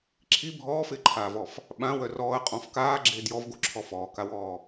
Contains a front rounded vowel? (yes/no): yes